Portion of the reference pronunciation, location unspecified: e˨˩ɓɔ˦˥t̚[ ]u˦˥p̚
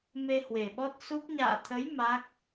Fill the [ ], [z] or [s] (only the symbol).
s